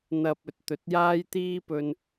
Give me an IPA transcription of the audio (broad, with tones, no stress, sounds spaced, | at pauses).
n̪ ɐ˧ p̚ ɵ˨ t̚ t̪ ɵ˨˥ t̚ j aː˥ j t̪ iː˥ p ɵ˧ n